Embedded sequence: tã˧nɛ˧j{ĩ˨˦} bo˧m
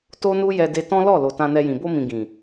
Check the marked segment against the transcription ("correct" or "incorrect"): incorrect